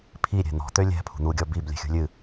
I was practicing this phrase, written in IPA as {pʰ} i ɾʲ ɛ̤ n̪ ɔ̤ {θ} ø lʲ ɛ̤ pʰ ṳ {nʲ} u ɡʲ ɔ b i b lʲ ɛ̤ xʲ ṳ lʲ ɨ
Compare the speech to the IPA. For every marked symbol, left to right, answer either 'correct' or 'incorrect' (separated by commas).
correct, incorrect, incorrect